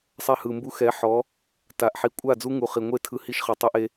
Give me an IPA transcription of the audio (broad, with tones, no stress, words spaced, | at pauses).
sˤɛ˧hɯ˨mbu˧ xɛ˨˦ħɔ˨˦ | ta˨ʔħi˨ kʷʼa˦˨ d͡zu˦ŋu˨χi˨ŋʷe˦ tʰɯ˧hi˦ʃχɯ˨tˤe˦ʔ e˧